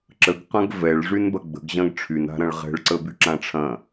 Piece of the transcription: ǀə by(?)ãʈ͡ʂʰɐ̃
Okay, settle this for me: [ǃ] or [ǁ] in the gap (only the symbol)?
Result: ǁ